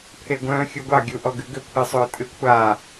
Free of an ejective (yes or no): no